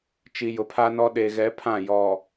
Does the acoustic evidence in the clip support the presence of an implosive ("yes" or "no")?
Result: yes